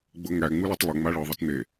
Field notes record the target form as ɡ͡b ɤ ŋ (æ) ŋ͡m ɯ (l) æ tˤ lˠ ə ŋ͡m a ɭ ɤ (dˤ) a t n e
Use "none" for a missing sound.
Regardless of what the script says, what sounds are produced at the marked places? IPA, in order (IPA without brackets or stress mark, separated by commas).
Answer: æ, l, ðˤ